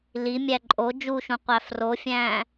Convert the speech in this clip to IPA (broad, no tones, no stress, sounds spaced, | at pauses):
l i mʲ æ ǃʼ o d͡ʒ u ʃ ũ qʷ æ f r o fʲ æ̃